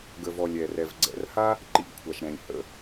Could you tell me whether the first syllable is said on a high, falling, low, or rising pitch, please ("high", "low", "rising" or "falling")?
low